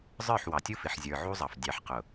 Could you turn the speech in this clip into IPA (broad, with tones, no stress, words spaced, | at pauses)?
zˤə˞˦˨ħwɑ˨tʲu˦fɪ˨ħ zʲə˞˨ʕu˦zˤɑ˨f dʲɑ˨ħqʊ˨